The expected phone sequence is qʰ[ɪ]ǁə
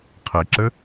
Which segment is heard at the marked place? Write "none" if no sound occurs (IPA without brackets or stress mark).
ɪ